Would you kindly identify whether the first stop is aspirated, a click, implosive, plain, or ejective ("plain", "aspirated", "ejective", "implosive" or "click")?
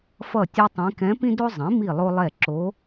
plain